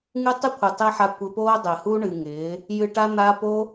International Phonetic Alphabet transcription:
ŋ ɨ˦ tˤ ɨ˦ kʷʰ ɪ˨ tˤ ɪː˦ ħ a˧ kʷ ɘ˧ p oː˦ dˤ ɪː˨ h u˦ ɳ ɨ˨ ŋ ɪː˨˦ | j ɨ˧ ʈ a˦ n̪ a˦ p o˦

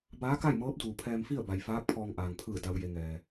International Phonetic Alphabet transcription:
b aː˧˥ k a˥˨ j m ɤː˧˥ p̚ d uː˩ pʰ ɛː˧ m f i˥˨ ə̯ b a˩ j f aː˧˥ k̚ pʰ ɔː˧ ŋ ʔ aː˩ ŋ pʰ ɯː˧˩ d a˩ w j e˩ ŋ ɛː˩

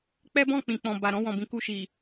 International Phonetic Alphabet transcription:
k͡p ɛ˦ b ɔ̃˦˨ k͡p ĩ˨ k͡p ɔ̃˨ b a˨ ɾ ɔ̃˧ w ɔ̃˨ b ĩ˨ k u˧ ʃ i˨

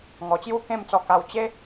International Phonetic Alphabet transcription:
ŋ ɔ˨˩ t͡ɕ j u˦ k ẽ˥˧ m t͡s ɔ˧ k a˧ w t͡ɕ e˦

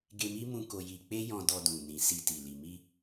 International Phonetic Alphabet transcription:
ɡ e˧ m i˦ m ũ˧ k o˧ j i˧ k͡p e˦ j ɔ̃˧ d ɔ˧ d ũ˨ n ĩ˨ s i˧ t i˨ l i˨ m i˧

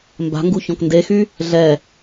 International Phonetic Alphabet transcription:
m b a̤ ŋ ɡ u ç ɔ̃ k n d e x y | ɮ ɛ

